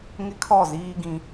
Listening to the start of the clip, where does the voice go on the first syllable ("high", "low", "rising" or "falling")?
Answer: high